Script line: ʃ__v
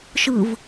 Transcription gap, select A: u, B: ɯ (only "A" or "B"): B